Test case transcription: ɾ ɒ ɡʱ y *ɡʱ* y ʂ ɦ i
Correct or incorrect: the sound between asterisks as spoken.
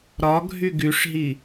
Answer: incorrect: ɡ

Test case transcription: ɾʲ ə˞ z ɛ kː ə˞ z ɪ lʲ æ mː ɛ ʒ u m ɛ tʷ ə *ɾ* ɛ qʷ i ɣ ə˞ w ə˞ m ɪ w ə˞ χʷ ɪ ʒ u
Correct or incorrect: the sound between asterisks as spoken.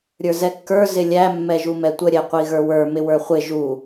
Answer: incorrect: ɾʲ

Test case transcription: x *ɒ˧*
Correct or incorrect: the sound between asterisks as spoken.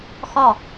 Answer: incorrect: ɒ˥˧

